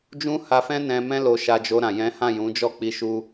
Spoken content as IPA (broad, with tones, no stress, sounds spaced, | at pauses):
d͡ʒ ũ˦ h a˧ f ɛ̃˦ n ɛ̃˧ m ɛ̃˦ l o˧ ʃ a˧ d͡ʒ o˧ ɾ ã˨ j ɛ̃˨˦ h ã˦˨ j ũ˨˦ d͡ʒ ɔ˦˨ k͡p i˧ ʃ u˧